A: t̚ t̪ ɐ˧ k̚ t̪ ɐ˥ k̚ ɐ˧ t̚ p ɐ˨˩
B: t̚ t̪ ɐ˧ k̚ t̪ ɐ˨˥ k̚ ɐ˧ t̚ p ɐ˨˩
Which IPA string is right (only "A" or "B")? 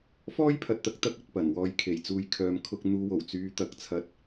A